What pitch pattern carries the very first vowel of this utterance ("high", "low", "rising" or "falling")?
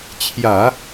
low